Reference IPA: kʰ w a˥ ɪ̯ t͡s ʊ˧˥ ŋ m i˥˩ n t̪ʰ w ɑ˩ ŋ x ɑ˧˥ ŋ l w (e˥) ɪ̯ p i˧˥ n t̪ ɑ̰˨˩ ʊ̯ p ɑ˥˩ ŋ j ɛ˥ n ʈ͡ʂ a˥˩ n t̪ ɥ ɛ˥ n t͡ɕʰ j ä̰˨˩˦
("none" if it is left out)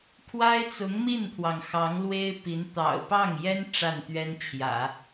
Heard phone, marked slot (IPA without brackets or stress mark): e˥